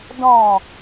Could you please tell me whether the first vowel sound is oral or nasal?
nasal